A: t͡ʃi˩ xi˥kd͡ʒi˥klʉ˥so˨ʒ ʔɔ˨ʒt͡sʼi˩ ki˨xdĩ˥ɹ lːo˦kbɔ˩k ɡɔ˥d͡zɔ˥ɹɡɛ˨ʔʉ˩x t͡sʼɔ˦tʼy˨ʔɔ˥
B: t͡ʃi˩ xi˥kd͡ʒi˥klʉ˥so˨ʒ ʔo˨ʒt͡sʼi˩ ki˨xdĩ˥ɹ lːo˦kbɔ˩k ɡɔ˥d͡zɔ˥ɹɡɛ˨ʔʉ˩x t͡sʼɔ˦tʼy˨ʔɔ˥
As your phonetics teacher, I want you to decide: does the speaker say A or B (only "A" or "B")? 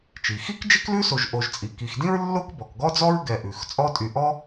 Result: B